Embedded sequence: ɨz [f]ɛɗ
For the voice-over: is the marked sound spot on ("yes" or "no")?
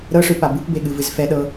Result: yes